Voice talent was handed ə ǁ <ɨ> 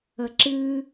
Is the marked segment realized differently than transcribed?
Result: no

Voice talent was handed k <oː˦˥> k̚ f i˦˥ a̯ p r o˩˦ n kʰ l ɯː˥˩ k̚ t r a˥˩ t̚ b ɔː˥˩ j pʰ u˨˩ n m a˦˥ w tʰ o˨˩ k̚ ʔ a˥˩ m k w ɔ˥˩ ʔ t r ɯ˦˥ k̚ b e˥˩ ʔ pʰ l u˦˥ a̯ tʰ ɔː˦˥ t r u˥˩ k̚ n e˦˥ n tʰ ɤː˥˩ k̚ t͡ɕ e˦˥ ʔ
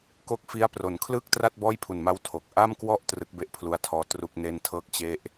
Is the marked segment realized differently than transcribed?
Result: yes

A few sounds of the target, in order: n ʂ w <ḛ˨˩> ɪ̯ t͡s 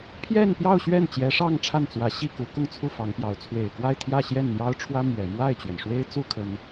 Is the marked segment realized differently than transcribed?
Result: yes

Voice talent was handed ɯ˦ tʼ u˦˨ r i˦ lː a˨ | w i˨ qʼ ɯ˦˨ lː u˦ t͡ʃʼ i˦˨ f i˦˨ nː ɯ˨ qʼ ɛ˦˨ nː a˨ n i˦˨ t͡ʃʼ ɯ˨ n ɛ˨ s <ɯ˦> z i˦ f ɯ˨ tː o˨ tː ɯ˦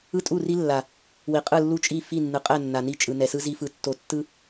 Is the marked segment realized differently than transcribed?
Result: no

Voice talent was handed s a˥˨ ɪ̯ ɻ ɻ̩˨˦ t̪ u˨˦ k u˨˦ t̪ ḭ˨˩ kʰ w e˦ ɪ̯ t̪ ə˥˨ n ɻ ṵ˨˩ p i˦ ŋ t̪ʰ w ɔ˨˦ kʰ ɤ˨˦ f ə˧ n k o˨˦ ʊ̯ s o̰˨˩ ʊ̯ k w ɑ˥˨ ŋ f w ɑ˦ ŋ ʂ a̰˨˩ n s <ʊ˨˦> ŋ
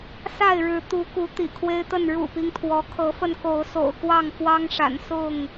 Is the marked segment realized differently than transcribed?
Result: yes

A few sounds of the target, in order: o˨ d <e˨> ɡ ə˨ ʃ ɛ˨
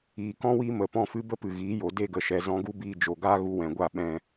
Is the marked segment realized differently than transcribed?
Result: yes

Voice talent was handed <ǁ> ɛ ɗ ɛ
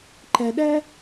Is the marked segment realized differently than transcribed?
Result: yes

